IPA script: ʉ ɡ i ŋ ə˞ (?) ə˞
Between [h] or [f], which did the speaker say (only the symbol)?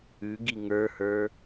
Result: h